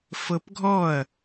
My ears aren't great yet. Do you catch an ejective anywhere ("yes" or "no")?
no